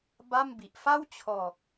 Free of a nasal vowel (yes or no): yes